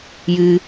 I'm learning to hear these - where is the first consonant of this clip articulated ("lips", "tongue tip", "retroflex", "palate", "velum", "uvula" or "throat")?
palate